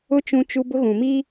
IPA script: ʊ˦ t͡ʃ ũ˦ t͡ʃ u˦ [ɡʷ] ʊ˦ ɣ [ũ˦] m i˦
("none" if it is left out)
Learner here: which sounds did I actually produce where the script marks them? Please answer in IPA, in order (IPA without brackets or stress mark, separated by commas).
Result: b, ũ˨